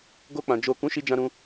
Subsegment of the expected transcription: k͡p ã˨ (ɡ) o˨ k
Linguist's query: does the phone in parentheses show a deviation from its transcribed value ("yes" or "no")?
yes